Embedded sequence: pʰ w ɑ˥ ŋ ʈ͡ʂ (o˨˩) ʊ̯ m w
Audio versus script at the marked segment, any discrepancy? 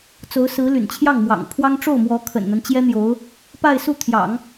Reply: yes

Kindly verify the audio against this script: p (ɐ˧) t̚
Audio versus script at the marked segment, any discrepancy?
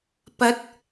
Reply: yes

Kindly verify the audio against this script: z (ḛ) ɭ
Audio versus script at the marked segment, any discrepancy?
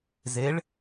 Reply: yes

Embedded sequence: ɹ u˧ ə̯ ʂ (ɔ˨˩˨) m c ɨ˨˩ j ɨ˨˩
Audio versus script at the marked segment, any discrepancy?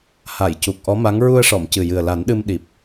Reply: no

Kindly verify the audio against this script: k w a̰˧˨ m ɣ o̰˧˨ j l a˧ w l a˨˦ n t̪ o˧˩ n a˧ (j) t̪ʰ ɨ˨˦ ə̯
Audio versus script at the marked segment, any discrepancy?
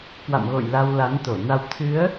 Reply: yes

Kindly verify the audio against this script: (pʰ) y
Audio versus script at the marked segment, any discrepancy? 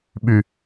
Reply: yes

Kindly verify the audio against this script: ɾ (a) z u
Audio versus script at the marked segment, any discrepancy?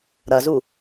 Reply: yes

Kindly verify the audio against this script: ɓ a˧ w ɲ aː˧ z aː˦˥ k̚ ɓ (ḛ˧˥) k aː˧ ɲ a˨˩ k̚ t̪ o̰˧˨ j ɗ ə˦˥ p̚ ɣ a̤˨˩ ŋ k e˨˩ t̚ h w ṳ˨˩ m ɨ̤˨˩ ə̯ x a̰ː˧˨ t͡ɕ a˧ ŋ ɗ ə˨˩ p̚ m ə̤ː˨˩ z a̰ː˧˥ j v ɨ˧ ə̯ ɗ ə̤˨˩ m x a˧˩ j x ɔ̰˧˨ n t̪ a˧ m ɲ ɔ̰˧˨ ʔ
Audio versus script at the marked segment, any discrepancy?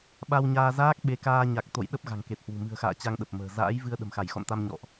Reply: yes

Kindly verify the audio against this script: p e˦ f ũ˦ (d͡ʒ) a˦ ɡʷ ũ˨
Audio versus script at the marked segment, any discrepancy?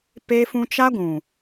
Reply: yes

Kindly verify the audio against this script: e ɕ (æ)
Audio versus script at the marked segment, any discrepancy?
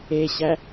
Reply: no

